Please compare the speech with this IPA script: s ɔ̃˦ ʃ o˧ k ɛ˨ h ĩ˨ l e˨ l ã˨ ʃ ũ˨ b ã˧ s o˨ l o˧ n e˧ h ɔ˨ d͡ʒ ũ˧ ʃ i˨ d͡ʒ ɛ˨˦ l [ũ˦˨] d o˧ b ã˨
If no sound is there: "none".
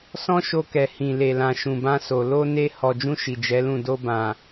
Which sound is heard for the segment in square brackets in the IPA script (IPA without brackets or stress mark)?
ũ˦˨